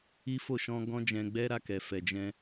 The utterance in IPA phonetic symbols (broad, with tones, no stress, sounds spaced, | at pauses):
i˦ f o˦˨ ʃ ɔ̃˧ ɡ ɔ̃˦ d͡ʒ ɛ̃˧ ɡ͡b ɛ˦ ɾ a˧ k ɛ˨ f ɛ˨ d͡ʒ ɛ̃˧